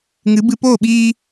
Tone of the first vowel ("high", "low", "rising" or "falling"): rising